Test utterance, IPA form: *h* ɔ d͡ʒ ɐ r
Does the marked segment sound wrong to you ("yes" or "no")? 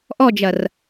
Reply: yes